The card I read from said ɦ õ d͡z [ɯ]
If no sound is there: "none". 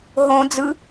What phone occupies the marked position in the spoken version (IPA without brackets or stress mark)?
ɯ